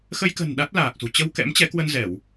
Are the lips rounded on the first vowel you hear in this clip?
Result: no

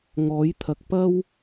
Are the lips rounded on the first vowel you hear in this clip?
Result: yes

